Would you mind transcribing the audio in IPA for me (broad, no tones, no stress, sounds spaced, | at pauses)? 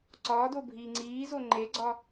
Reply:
ǀ ɒː d o bʱ iː ŋ͡ǀ iː z o ŋ͡ǃ e ɡ͡ǀ ɒ